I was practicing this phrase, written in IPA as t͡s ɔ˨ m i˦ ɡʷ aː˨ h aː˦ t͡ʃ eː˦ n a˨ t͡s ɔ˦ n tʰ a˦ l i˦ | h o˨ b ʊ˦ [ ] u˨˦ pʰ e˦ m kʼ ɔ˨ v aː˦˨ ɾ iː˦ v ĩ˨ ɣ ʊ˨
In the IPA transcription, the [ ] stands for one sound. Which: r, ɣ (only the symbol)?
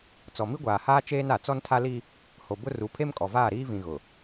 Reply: r